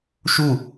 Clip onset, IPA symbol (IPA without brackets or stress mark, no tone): ʃ